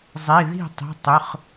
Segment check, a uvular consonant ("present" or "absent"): present